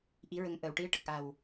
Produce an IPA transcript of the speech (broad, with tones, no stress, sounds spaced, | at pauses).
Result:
ʔ i˧˥ ɹ ə˧ ŋ ʔ əː˨˩˨ w ʈ i˧˥ ə̯ ʈ ə˨˩ k̚ ʔ a˨˩ w